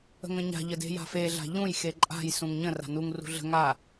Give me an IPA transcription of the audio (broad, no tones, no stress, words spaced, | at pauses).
ə̤ŋə̃ɲa̤ ʎəde̤ja̤fe ɮa̤ʎũj xeǃʼa̤j sũŋɲə̃ ra̤nuŋ rṳɮə̤ ŋa